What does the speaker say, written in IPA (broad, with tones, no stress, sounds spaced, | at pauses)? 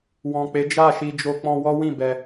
w ɔ̃˨ k͡p e˨˦ d͡ʒ a˦˨ ʃ i˧ d͡ʒ o˧ k͡p ɔ̃˧ w ɔ˦ w ĩ˦˨ b ɛ˧